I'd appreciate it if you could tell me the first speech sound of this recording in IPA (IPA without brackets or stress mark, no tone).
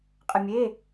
qʼ